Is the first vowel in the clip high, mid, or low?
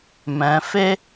mid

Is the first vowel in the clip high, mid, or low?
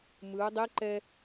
high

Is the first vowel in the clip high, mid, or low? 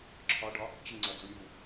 low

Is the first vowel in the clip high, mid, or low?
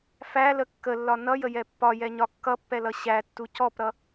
low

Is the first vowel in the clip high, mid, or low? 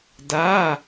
low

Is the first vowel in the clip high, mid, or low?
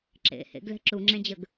mid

